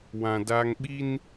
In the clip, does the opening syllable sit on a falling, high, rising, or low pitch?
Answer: low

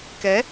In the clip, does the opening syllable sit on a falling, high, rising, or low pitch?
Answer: rising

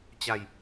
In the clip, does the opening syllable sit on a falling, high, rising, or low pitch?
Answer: falling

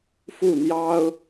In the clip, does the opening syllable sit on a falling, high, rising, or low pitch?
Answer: falling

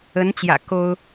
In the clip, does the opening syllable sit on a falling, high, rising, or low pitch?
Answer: rising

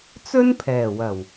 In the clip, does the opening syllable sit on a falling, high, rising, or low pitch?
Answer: high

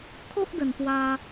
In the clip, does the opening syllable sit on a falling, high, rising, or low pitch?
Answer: high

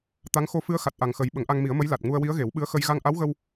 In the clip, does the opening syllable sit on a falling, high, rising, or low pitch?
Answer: rising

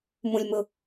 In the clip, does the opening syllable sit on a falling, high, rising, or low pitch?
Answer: high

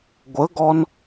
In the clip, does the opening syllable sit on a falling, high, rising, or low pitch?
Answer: rising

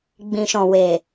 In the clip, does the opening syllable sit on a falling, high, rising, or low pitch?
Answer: low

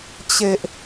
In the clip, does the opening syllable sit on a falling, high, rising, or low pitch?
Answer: low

